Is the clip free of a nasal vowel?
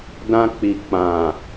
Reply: no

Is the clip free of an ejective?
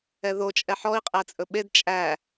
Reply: no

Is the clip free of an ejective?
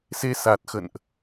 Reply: yes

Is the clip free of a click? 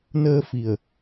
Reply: yes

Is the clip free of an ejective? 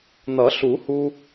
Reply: yes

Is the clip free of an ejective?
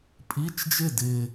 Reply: no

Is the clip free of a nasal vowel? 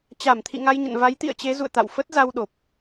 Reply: yes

